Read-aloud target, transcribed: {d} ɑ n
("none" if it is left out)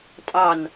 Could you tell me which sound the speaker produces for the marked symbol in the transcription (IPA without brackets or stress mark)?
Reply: tʼ